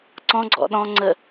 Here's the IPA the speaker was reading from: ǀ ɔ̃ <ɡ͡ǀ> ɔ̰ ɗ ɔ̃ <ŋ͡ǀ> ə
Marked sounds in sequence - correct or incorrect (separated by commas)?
correct, correct